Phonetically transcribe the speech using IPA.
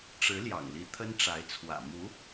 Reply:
ʈ͡ʂɻ̩˧˥ ljɑ̰˨˩ŋli˧˥ t̪ʰə˥nʈ͡ʂa˧˥ɪ̯t͡sʰwä̰˨˩ mu˧˥

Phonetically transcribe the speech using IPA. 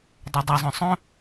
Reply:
dˤødˤœzˤœ̃ sˤœ̃

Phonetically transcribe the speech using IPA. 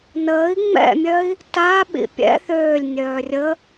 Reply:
nəːi̯ ŋ͡mɛ̰mʲœi̯ | taɓḭ pʲɛ̰ θøːlʲnʲœː rʲə

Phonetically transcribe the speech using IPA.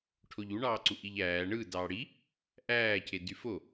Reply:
ʈʰoʎuɳɑː ǀuʔiʎæː ɳɯ dɑːɽi | ʔæːcʰedy fo

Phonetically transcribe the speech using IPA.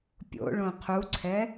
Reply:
pʲo̰ ɭõqʰuǀʰɛ

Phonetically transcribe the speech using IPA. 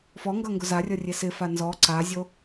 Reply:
fɔŋɡʌ ŋɡʊzarʲʌ rʲesɪfa nzɔ ǀazʲo

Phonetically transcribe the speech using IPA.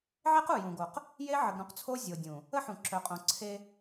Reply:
ʕe˦qu˨jũ˨ɡo˨q | je˦ʕə˨ɡɾũ˦qt͡sʰo˦ zʲo˨dʲũ˨ | ə˦ħũ˨ǁœ˨qʼõ˨ ǀʰe˦

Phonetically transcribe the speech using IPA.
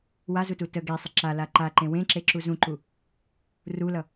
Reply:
wazutu tə ɡesˤə ǁala ǃaǃẽ wẽǁeǁu zũǃu | rulʌ

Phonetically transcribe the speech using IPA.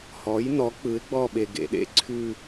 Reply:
hɔ˩˥jnɔ˩˥ k͡pɯ˩˥ɪ̯ɡ͡bɔ˥˧ɓe˨ ɡḛ˨ɗḛ˥ ǀʰʉ˥˧

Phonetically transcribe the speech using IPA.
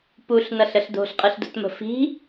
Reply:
puɬnʌɬəɬ do̤ɬqʼɯɬdo̤tmə̤ fi̤

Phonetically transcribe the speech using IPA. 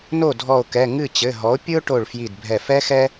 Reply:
no˥˩dʱɔ˧˩o̯kɛ˩˧˩ ŋɨ˥˩ t͡ɕɘ˩˧˩ɦɔ˩˥o̯pʲɨ˥o̯ʈo˧˩ɭ fji˧˩dbʱɛ˧˩ fɛ˥xɛ˥

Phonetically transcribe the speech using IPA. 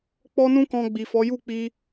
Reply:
k͡pɔ˦nũ˦kɔ̃˧ ɡ͡bi˨fɔ˨˦ju˦˨ k͡pi˧

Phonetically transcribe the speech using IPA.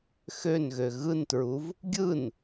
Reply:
xønɣø ɣɯntɹuv | ɡʲɯn

